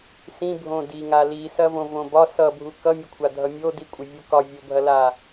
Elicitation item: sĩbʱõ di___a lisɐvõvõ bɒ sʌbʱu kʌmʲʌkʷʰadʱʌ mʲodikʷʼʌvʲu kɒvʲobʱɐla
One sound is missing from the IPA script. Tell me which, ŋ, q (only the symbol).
ŋ